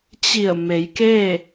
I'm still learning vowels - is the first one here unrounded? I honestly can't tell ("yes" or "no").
yes